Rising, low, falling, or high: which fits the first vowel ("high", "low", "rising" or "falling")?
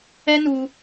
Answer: high